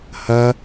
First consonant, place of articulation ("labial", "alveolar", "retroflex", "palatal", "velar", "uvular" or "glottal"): glottal